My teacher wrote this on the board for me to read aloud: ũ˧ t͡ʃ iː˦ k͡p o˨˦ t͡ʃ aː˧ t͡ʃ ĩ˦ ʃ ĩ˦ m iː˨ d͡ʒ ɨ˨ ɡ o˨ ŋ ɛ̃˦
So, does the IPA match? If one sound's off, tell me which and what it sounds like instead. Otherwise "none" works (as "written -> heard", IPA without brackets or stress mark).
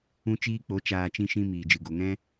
none